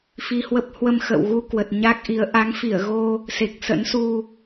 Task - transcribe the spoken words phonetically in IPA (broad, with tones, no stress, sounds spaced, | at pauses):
f i˧ h w ə˦˥ p̚ h w ə˧ m x ə̰˧˨ w ɣ u˧ k w ə˨˩ t̚ ɲ a˦˥ k̚ ʔ i˨˦ ə̯ ʔ a˨˦ ŋ f i˧˩ ə̯ ɣ o˧ | s e˨˩ k̚ s ə̰˧˥ n s u˧